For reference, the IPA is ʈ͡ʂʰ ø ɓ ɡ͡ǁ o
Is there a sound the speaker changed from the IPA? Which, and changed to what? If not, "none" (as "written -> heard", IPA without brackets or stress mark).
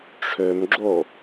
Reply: ɓ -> m